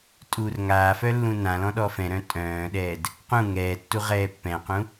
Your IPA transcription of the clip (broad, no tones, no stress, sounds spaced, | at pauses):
tʼ uː r ŋ aː f œ lː ũ n ã l ɔ̃ ɗ ɔ f ɛ̃ ɾ œ̃ tʼ œ̃ː ɗ ɛː d | q ũ ŋ ɛː tː u ʁ ɛː pː ɛ̃ q ũ